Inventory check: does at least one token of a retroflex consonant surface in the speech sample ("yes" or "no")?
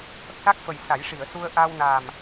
yes